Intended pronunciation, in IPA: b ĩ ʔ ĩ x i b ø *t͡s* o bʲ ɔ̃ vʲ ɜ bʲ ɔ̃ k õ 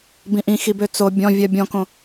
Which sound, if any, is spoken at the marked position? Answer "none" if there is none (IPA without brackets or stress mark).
t͡s